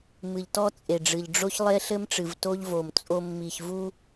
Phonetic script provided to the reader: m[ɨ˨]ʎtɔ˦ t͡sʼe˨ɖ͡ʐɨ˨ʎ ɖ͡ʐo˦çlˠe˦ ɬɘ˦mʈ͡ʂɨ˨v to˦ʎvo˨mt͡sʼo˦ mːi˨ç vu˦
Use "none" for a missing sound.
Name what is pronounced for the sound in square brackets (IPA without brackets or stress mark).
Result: ɨ˨